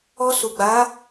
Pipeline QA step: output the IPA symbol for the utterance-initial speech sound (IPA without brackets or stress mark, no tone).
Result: ɔ